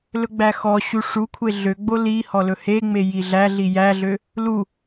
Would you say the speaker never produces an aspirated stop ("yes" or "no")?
no